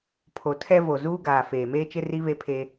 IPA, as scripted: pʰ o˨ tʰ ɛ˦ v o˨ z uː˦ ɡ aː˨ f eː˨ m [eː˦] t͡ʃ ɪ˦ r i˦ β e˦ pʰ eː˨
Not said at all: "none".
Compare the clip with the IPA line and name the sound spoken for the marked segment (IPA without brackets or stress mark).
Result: eː˦